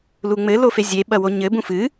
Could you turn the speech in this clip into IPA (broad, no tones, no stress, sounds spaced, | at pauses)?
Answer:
l u ŋ͡m ɘ l o f e zʲ e ɓ ɐ w o ɲ ɘ b ũ f ɨ